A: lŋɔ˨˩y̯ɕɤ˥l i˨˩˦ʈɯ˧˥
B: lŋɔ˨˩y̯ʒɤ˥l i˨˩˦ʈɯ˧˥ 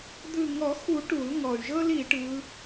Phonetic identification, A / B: B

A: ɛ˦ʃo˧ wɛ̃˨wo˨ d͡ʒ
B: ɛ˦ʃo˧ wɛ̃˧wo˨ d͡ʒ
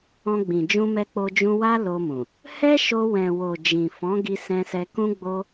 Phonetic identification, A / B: A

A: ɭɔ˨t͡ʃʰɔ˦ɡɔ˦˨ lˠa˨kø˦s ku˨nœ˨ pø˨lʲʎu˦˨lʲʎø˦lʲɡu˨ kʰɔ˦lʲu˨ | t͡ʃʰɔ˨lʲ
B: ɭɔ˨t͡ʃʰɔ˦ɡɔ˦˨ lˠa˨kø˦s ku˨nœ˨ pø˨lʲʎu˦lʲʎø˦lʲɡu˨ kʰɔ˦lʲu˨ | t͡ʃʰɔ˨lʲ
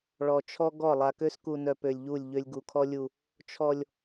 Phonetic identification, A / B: A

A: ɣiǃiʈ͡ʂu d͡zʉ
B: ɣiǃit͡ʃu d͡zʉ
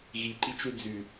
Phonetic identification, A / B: B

